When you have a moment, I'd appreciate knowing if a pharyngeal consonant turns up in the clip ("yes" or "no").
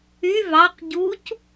no